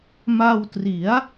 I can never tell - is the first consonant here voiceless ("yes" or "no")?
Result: no